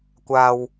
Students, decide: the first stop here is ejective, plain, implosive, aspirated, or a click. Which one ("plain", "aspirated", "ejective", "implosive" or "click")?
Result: plain